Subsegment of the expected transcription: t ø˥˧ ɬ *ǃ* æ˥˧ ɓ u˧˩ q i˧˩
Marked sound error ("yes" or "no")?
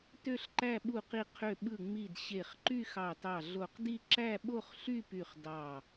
no